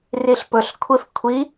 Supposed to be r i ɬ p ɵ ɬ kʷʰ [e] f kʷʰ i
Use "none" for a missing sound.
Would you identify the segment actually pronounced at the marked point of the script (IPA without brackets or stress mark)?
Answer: e